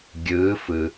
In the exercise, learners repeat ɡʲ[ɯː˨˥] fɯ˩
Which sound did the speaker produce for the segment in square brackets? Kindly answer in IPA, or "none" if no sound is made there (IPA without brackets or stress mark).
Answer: ɯː˨˥